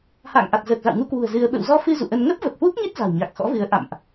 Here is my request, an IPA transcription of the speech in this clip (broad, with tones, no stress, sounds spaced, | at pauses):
h a̰ː˧˨ ŋ ʔ a˨˩ t̚ z əː˨˩ k̚ z a̰˧˨ w ŋ u˧ k w ṳ˨˩ ə̯ z ɨ˧ ə̯ ɓ ə̰˧˨ w z ɔ˧ f ɨ˧ z ṵ˧˨ ʔ ə˧ n ŋ ə˦˥ p̚ v ə˨˩ p̚ h w u˦˥ k̚ ɲ e˦˥ t̚ z a̤˨˩ w ɲ a˨˩ k̚ x ɔ̰˧˥ v ɨ˨˦ ə̯ ʔ a̰˧˨ m ʔ